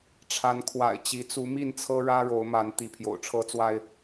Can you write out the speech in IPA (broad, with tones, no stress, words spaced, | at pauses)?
ʈ͡ʂʰa˨˦nkʰwa̰˨˩ɪ̯t͡ɕi˨˦ t͡su˨˦mi˥˨nt͡sʰɤ˦ɻä˦ ɻo˨˦ʊ̯ma˨˦n t̪i˨˦pʰjo̰˨˩ʊ̯ʈ͡ʂʰɤ˦t͡swa˦ɪ̯